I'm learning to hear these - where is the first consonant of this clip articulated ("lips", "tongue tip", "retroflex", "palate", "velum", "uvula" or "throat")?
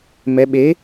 lips